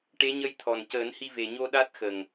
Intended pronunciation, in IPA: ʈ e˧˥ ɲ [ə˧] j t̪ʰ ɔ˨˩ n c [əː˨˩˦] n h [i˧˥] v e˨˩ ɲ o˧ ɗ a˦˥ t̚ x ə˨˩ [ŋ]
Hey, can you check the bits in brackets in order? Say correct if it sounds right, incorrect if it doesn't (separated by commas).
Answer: correct, correct, incorrect, correct